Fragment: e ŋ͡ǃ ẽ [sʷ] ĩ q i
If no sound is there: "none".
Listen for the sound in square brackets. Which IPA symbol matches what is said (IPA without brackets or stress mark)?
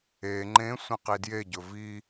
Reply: sʷ